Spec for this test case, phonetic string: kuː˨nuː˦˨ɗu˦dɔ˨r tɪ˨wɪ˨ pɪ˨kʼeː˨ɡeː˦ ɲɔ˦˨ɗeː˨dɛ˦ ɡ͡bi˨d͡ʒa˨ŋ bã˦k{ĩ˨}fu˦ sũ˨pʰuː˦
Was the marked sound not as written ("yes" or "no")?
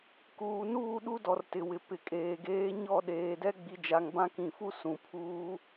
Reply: no